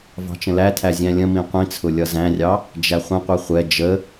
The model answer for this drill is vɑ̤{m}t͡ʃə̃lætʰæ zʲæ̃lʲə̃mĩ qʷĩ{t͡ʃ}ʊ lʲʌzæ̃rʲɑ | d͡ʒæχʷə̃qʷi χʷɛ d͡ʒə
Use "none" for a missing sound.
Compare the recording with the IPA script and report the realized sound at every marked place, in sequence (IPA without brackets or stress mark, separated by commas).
none, t͡sʰ